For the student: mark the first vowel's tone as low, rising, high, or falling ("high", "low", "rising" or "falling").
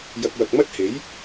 low